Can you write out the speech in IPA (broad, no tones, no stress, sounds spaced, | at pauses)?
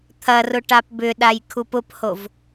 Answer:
t̪ʰ ɐ r ʊ ʈ a p b ʏ ɗ a j kʰ u p ʊ p h o v